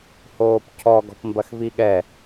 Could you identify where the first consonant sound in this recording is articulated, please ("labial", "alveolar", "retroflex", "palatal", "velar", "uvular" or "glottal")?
glottal